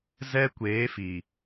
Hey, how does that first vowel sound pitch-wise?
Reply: high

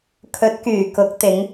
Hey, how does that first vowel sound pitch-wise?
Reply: rising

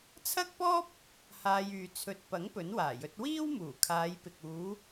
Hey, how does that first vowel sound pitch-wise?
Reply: high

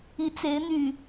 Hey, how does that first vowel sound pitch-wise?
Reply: rising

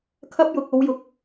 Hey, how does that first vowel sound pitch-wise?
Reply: high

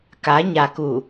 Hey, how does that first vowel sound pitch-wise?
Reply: rising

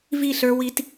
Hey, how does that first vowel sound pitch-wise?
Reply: falling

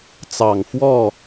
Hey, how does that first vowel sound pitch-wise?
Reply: low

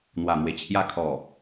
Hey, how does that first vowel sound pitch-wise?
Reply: low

